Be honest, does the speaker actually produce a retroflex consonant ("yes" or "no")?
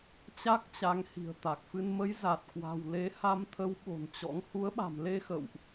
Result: no